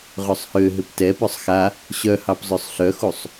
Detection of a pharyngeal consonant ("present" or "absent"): absent